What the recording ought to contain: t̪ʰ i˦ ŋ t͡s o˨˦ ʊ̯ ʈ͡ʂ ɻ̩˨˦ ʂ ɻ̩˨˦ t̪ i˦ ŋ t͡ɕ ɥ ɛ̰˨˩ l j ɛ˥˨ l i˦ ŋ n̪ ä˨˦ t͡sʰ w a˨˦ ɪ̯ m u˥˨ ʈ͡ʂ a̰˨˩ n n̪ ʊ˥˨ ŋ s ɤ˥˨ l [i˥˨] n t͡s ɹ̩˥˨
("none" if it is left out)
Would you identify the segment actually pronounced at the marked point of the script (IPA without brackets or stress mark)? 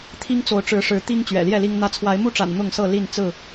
i˥˨